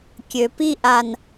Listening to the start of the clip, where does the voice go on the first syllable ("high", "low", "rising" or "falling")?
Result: low